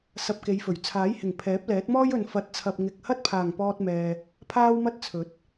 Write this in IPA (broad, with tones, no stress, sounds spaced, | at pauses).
s ɐ˧ p̚ k e˨˧ j f ɵ˨˩ ɥ t͡sʰ aː˨˥ j h ɪ˨˩ ŋ pʰ ɛː˨˥ p̚ l ɛː˨˥ t̚ m ɔː˥ j ɵ˨ n f ɐ˨˥ t̚ t͡sʰ ɐ˨ p̚ ŋ ɪ˨ k̚ h ɐ˥ t̚ pʰ aː˨˩ ŋ p ɔː˧ t̚ m ɛː˨ | pʰ aː˥ w m ɐ˥ t̚ t͡sʰ ɵ˨˥ t̚